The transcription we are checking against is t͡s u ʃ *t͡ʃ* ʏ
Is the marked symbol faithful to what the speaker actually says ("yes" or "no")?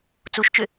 yes